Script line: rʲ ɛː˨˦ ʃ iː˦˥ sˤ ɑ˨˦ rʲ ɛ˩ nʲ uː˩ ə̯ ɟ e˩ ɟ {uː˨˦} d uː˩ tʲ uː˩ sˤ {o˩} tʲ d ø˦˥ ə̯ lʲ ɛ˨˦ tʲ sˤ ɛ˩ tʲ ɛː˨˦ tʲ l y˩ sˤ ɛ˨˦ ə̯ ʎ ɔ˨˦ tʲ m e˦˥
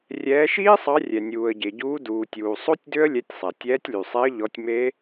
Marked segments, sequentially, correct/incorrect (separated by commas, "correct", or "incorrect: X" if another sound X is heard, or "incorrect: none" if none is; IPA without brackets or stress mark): correct, incorrect: o˦˥